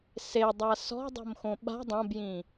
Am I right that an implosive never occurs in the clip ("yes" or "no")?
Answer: no